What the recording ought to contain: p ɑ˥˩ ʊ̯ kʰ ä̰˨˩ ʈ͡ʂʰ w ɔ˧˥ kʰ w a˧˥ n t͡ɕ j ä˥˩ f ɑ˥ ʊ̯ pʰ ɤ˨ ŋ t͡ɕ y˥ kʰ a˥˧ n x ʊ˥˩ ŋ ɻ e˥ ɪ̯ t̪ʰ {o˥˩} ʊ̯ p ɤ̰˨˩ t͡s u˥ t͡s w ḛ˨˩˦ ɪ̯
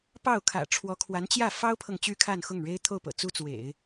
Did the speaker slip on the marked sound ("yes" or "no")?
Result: no